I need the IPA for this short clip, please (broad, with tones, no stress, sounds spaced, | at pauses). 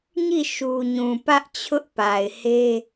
ɲ i˦˨ ʃ u˨ ɲ ũ˨ p ä˦ ʔ t͡ɕʰ ʊ˦ ʔ p a˨ ɪ̯ h e˦